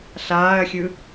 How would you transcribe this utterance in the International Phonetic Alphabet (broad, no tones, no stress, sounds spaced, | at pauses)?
ɬ aː ɐ̯ xʲ ɯ